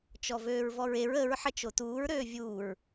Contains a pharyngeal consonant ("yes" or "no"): yes